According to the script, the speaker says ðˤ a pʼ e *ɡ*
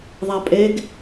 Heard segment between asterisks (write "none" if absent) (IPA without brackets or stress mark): ɡ